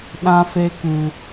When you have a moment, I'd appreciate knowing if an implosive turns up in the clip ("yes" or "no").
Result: yes